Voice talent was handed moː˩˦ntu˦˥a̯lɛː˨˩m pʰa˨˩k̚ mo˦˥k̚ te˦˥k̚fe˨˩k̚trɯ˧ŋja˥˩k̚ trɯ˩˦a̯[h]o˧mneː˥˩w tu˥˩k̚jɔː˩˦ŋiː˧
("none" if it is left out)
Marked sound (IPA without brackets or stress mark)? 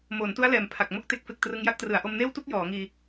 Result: ʔ